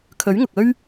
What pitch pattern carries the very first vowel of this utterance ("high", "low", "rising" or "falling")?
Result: rising